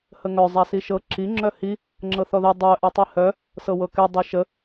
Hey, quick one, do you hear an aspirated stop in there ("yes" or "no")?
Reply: no